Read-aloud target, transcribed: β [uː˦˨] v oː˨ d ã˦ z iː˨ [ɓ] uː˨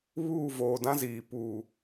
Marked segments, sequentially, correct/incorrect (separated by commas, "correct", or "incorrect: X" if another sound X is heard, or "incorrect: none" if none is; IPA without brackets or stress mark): correct, incorrect: p